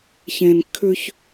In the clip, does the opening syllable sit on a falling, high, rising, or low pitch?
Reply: low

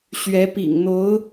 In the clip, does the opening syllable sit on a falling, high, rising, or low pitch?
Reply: rising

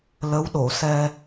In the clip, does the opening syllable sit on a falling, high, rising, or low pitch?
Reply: rising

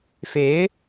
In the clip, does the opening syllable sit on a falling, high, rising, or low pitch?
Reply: rising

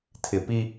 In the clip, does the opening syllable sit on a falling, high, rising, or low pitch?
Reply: low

